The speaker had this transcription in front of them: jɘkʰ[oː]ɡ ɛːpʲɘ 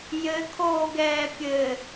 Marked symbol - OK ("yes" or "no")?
yes